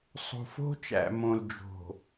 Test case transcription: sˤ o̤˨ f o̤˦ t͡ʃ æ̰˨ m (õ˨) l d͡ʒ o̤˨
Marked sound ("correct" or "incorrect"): correct